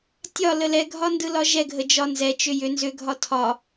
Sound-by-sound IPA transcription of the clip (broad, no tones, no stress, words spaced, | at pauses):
tʲɒlə lɛɡʱɒndɯlɒ ʒɛɡʱəd͡ʒɒ nzɛt͡ʃʏ jʏ nzʏɡʱɒ tʰɒ